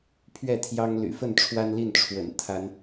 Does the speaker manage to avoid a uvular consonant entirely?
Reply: yes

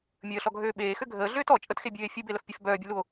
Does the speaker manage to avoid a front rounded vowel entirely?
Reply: no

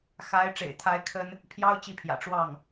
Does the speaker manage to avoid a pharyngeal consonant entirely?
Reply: yes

